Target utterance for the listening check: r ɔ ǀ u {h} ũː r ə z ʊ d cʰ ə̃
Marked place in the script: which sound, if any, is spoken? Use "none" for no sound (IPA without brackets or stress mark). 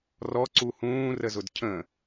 h